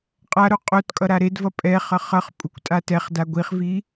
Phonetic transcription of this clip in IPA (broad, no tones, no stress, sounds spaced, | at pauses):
qʼ a ɾ o qʼ o t kʼ ʌ ɾ a ɾ e d v ʌ pʼ ɛ χ ʌ χ ʌ χ pʼ u kʷ tʼ a t ɛ χ d a ɡʷ i χ v i